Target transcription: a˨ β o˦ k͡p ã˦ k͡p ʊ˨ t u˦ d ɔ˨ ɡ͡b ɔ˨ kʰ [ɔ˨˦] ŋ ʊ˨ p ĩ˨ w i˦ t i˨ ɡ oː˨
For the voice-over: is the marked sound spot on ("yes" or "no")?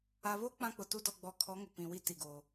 yes